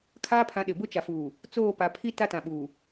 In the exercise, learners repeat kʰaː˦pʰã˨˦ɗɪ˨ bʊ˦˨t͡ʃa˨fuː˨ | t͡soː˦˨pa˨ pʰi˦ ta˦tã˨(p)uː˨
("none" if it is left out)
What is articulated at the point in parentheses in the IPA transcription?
ɓ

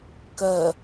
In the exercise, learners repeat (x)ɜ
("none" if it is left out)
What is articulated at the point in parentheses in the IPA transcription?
k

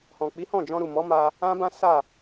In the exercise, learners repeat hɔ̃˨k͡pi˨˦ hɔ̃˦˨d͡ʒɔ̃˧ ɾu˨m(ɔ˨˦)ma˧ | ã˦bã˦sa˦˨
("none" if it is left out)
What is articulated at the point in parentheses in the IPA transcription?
ɔ˨˦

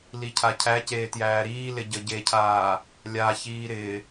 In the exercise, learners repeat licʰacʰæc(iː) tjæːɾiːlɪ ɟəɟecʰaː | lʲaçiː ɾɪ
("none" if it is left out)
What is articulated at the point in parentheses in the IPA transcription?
eː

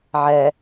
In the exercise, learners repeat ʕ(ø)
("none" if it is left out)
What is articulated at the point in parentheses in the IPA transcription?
ɛ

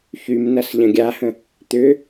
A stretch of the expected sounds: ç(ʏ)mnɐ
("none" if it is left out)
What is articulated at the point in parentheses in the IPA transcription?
y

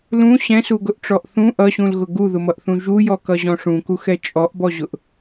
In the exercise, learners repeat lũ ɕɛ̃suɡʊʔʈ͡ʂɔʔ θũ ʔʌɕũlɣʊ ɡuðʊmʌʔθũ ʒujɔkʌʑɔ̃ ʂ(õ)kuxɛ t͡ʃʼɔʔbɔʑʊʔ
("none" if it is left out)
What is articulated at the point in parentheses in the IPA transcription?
ũ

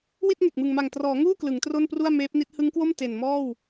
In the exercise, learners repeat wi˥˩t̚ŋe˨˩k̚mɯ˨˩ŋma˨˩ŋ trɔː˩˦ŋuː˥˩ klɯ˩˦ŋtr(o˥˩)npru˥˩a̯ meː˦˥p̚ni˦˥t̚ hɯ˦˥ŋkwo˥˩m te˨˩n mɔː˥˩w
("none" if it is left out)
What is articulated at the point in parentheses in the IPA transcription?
o˥˩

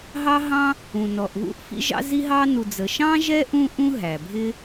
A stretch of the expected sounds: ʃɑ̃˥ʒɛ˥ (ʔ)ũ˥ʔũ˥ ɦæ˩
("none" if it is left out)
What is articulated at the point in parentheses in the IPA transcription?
ʔ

